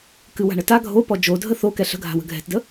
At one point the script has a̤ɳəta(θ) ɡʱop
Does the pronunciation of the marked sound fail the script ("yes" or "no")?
yes